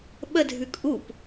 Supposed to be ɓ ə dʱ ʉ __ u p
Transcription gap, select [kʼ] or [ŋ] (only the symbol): kʼ